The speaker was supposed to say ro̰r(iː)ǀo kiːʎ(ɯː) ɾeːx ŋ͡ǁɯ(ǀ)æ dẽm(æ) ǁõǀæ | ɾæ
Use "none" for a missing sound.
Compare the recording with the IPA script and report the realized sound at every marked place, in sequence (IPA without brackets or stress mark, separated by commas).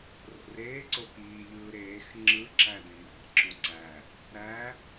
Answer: eː, ɯː, ǁ, æ̰